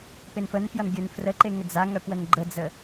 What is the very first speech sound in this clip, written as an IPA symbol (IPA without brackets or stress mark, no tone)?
p